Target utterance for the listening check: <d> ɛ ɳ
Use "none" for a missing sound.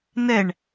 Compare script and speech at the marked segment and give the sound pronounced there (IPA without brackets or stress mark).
n